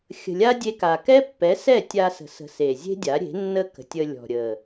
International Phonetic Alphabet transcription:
xʲ ə̤˨ lʲ a˦ dʲ e˧ k a˨ k ɛ˦ pː ɛ˨˦ s ɛ˦˨ tʲ a˧ s ə̤˨ s ə̤˨ s e˨ zʲ e̤˦ dʲ a˨˦ ɾʲ e̤˨˦ nː ə˦ k ə̤˨ tʲ ə˧ lʲ ɔ̤˨ ɾʲ ə˨

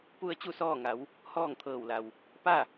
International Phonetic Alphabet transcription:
p u˧ ə̯ t͡ɕ u˥˨ s ɔː˥˨ ŋ a˩˧ w | h ɔː˥˨ ŋ t̪ʰ ɤː˧˩ w l a˩ w | p a˥˨

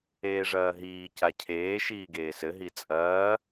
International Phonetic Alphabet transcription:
eː ʐ ɐː ɦ iː c a cʰ eː ʃ iː ɡ eː s ɘ ɦ i t͡sʼ ɐː

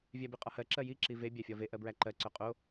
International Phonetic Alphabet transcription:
vʲ æ b i qʼ ɒ h ɜ ǁ ɜ j i ǁ i v e bʲ æ fʲ ɒ v e ʔ ɜ b ɹ æ ǃ ɜ ǀ œ qʼ o

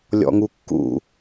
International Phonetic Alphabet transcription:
lʲ ɔ̰ ŋ u kː ṵ

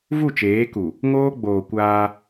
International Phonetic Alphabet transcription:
v u˦˨ t͡ʃ eː˨˦ k u˨ | ŋ oː˦ ɡ͡b oː˨ kʷ aː˦

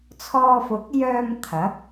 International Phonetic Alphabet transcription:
t͡sʰ ɔː˧ f ʊ˨˥ k̚ j œː˧ m t̪ʰ ɐ˨˥ k̚

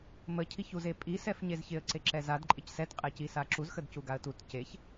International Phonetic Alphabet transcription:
m ə cʰ i ç u z e pʼ i s ɛ f ɲ e z ç ɪ ə̯ ǀ e ǁ ɛ z a d ǃʼ ɪ c s ɛ t qʼ ɛ c i s a ǁ u z x ə d c u ɡ a ə̯ t u t c e ç

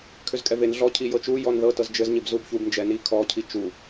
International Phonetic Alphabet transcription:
kʰ ʏ z kʼ ɛ v e n ɮ ɔ cʰ i j ɤ t͡ʃ u j ɔ n ð ɤ t ɤ z d͡ʒ ɘ z ɲ ɪ b z u b ç u b n d͡ʒ ɛ n i kʰ ɔ cʰ i t͡ʃ u

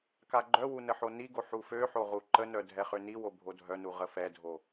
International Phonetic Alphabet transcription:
k a ɡ͡ǃ œ w u n ə ħ o n i ɡ o ħ u f ø ħ o ʁ u ǃ ə n œ dʱ ɛ χ ø n i w o bʱ o dʱ œ n u ʁ ə f ɛ dʱ o

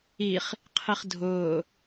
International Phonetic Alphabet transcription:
i χ | qʰ i χ dʱ ʊː

